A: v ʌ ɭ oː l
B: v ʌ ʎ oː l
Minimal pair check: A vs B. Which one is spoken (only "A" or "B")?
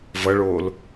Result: A